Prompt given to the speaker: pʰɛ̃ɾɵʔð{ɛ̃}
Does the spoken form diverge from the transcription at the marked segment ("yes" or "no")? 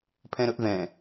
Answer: no